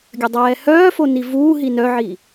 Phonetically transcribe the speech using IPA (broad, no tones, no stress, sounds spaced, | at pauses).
ɡʲ ə dˤ ɛː h œː f o n i v uː ɦ i n œ ʕ i